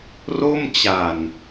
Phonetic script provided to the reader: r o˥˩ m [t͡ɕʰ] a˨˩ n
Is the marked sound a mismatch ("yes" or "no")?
yes